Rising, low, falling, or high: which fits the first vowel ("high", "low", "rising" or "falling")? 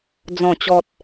low